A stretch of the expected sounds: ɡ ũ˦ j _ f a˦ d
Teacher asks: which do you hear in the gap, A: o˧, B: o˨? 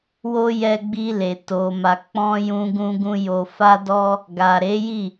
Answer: A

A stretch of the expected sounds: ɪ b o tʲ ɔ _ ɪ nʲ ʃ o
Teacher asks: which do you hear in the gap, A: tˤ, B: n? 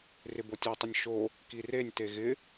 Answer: A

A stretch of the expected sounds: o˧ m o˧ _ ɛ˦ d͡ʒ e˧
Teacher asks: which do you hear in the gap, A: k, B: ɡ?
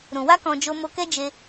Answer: A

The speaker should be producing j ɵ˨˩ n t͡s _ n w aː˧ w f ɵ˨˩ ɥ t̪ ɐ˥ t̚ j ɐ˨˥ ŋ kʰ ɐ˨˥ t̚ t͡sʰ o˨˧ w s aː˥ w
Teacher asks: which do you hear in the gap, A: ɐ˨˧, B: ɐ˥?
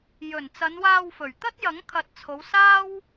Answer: A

